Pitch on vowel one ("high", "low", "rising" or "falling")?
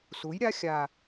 rising